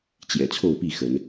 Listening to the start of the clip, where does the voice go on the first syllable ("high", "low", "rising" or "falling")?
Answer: low